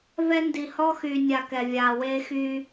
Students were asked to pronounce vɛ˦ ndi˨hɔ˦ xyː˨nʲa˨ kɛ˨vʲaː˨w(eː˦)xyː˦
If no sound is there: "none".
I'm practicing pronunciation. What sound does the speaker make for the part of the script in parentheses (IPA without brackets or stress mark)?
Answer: eː˦